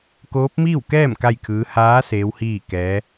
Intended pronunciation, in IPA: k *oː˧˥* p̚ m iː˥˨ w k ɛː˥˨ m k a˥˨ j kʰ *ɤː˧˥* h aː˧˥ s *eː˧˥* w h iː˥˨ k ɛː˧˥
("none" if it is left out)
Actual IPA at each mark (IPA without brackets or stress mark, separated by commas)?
oː˧˥, ɯː˧˥, eː˧˥